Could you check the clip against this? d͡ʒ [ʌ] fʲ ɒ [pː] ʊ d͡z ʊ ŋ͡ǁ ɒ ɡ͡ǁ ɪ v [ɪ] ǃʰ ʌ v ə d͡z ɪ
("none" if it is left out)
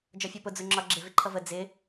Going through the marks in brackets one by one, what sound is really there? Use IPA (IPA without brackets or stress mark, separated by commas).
ɒ, p, ɪ